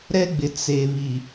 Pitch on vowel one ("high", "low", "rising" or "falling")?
high